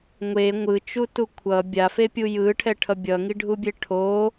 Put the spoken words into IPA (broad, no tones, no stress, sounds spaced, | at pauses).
ŋʷ e ŋʷ ɯ t͡ʃ u t u kʷʰ ʌ bʲ a f e pʲ u j ɯ ʈʰ ɛ ʈʰ ʌ bʲ ʌ ŋ i ɖʱ u bʲ e ʈʰ o